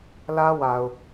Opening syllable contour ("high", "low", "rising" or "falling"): high